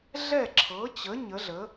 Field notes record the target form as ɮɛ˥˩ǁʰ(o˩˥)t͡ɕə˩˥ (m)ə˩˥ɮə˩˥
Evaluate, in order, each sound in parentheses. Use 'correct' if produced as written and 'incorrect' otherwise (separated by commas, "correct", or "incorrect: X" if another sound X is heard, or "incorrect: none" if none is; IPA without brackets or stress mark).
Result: incorrect: ɤ˩˥, incorrect: ɲ